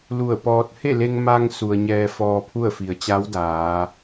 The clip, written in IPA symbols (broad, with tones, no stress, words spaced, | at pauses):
lu˧˩ə̯pɔː˧t̚ he˥˨le˧ŋ ma˧ŋ su˩ə̯ ɲɛː˧fɔː˧pʰu˥˨ə̯fi˩ə̯ t͡ɕa˧˥wdaː˩˧